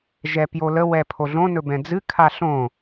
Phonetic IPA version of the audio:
ʒɛpjolə wɛpʰoɮõ nɵbɛ̃d͡zɨ kʰaɬõ

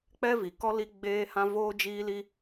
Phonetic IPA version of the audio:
k͡pɛ˦vi˨ kɔ˦li˦ ɡ͡beː˦ hã˦voː˦d͡ʒiː˦li˦

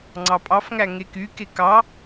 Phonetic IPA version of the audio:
ŋ͡ǀɑpʼɑfŋæ ŋekyke kɑ

